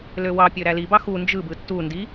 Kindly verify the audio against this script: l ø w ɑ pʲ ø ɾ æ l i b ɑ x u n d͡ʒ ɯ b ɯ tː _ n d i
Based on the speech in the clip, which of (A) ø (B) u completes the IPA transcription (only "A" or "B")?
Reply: B